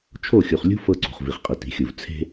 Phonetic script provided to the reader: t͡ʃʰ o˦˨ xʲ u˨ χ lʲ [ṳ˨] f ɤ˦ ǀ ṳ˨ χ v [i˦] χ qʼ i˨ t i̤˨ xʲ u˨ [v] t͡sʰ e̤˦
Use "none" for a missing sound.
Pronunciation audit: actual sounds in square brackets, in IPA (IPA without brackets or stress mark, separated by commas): ṳ˦, i˨, v